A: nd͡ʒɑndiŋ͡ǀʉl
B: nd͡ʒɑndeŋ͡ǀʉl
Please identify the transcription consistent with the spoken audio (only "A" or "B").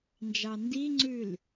A